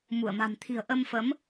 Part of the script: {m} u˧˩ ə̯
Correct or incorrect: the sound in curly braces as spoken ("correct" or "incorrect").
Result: correct